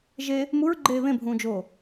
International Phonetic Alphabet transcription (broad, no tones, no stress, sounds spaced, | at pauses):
ʒ e | m u ɹ ɡ͡ǃ eː β ẽ bʱ ũː d͡ʒ oː